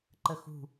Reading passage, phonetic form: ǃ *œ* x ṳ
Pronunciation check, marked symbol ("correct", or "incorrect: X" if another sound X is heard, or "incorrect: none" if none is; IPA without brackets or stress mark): incorrect: ə